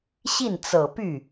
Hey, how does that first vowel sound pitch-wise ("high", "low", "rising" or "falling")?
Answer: falling